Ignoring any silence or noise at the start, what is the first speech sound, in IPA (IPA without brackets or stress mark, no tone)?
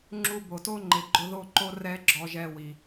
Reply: ŋ͡ǁ